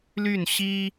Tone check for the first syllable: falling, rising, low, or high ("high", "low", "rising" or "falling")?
falling